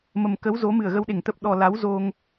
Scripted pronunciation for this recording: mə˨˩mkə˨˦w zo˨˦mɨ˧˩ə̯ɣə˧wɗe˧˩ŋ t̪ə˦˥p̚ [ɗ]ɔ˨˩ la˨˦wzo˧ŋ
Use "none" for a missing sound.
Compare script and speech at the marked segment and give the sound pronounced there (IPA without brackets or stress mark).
ɗ